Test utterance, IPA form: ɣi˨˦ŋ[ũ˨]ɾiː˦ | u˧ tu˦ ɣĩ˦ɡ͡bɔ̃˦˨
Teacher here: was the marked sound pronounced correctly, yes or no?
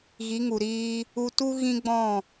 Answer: no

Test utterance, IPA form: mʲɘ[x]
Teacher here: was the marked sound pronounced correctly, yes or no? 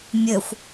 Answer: no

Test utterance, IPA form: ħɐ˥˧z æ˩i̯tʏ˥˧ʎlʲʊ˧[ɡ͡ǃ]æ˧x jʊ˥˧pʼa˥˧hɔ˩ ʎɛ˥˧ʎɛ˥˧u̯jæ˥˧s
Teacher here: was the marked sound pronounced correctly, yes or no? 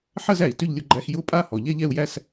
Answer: yes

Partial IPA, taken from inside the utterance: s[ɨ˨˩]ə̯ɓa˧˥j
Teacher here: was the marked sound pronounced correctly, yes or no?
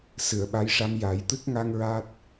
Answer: no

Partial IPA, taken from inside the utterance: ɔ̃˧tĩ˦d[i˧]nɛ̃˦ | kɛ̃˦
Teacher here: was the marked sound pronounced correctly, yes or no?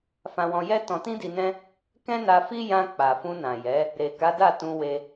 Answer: yes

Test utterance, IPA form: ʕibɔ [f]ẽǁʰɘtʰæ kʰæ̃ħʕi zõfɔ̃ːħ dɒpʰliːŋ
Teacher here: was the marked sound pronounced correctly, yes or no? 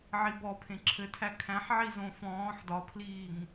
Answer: no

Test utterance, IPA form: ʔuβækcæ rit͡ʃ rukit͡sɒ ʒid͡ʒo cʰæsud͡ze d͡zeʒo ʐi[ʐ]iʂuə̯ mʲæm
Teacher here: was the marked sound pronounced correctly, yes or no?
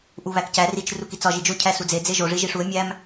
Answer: no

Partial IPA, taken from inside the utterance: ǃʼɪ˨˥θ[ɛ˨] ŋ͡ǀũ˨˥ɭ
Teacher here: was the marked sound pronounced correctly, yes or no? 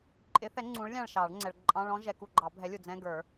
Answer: no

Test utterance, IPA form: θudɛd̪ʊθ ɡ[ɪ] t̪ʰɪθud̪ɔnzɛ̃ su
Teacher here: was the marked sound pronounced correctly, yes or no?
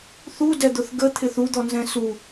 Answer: no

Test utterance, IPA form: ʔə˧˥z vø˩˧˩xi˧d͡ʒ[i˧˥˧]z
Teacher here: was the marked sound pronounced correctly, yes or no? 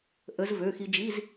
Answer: yes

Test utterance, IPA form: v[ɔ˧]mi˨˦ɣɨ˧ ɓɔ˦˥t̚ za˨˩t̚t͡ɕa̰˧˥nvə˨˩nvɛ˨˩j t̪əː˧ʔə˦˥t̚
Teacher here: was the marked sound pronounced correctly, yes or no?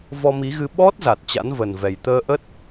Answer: yes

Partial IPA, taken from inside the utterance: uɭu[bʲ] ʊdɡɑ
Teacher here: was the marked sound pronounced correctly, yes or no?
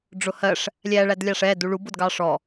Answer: no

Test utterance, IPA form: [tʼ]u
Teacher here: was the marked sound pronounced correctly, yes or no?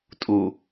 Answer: yes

